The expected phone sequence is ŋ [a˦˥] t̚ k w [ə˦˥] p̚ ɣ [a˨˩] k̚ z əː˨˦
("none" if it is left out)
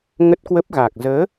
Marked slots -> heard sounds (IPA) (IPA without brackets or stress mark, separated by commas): ə˦˥, ə˦˥, a˨˩